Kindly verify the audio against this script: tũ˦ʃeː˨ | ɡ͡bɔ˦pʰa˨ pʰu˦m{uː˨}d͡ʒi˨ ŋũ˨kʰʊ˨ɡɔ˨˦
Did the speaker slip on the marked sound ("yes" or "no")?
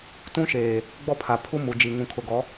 yes